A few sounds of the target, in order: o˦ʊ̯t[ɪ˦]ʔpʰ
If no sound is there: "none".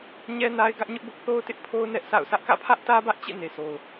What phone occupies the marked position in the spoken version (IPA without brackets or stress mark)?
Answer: ɪ˦